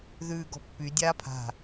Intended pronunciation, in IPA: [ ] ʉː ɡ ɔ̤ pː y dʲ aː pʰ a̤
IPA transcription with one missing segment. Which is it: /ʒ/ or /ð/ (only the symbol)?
ð